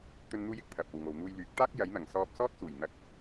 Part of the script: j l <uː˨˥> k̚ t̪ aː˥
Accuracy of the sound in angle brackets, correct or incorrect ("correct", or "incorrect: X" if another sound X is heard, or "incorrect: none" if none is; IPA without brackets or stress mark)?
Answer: incorrect: yː˨˥